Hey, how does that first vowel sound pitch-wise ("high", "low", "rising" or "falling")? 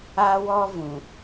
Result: high